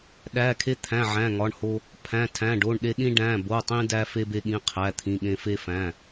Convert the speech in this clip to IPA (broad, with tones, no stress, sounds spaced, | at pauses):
ɗ æ˩˧˩ kʰ e˧ t̪ʰ æ̃˩˧˩ ʕ æ̃˩˧˩ ŋ ɒ˩˧˩ ɳ h o˧ | pʰ æ̃˩˧˩ tʰ æ̃˩˧˩ ɖ o˩˧˩ ɳ ɗ e˧ ɗ ĩ˧ ɖ æ̃˩˧˩ b o˩˧˩ tˤ ĩ˧ d æ˧ f e˧ b e˧ ɠ ĩ˩˧˩ qʰ æ˩˧˩ t̪ʰ ĩ˩˧˩ ɠ ẽ˧ f e˧ f æ̃˩˧˩